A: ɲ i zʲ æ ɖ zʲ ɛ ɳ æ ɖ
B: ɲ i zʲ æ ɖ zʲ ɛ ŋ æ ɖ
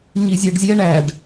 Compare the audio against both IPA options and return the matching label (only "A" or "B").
A